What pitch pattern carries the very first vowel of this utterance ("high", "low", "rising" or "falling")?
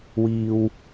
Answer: low